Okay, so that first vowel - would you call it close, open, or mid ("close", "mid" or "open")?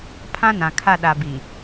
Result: open